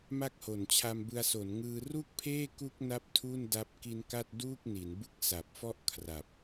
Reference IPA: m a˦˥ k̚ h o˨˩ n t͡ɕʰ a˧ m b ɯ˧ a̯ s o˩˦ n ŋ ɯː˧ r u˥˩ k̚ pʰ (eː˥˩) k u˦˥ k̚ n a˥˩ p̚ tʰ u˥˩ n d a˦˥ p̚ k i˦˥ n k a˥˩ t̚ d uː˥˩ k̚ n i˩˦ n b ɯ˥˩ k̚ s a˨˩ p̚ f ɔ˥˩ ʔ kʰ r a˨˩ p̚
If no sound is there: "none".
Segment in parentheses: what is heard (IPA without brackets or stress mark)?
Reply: eː˥˩